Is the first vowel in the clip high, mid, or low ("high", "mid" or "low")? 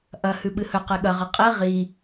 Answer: low